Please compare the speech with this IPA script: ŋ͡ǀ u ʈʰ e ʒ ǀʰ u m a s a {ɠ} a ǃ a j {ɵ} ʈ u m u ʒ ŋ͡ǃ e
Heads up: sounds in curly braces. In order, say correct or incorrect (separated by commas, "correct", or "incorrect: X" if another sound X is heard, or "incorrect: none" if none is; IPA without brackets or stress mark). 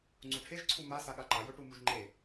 correct, correct